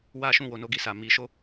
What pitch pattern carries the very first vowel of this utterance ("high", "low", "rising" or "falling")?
high